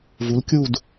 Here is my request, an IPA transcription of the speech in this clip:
v u˨˥ l kʲ u˥˧ d

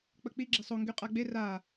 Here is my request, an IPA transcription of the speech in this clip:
k͡p ə k͡p i ɡ͡ǁ e sˤ o ŋ ɡ y qʼ a ɡ͡b e r a

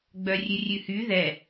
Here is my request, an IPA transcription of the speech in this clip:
ɡ͡b œ rʲ ʉ rʲ ʉ h y ð ɛ

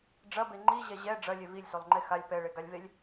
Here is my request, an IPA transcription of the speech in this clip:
ɖ͡ʐ ɐ b e ŋ͡ǃ i ʑ ɛ ʑ ɛ ɖ͡ʐ ɐ lʲ e v i lʲ s o lˠ ŋ͡ǃ e x a lʲ p ɛ ɭ e ɡ a lʲ v e lʲ

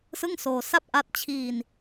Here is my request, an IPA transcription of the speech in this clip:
s ɯ˥˩ ŋ s oː˧ s a˥˩ p̚ ʔ a˦˥ t̚ t͡ɕʰ iː˧ n

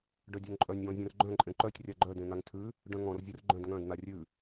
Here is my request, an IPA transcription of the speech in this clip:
ɖ œ dʲ œ ŋ ǃʼ œ nʲ j ɔ̃ zʲ œ̃ r ɡ͡ǃ œ̃ ǃʼ ẽ ǃ œ tʲ rʲ a ɡ͡ǃ œ d ẽ n̪ a ŋ tʰ ʉ | ɖ œ̃ ŋ ɔ̃ r zʲ œ r ɡ͡ǃ œ̃ d ŋ œ̃ d n̪ a rʲ ʉ

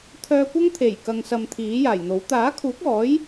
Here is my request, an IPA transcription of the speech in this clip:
t̪ʰ œː˧ kʷ ɐ˥ ŋ t̪ʰ e˨˩ j k ɐ˨ ŋ s ɐ˨ m t̪ʰ iː˨˥ j aː˨˩ j n̪ o˨˥ w t̪ aː˨˥ kʰ uː˨˥ k̚ ɔː˨˥ j

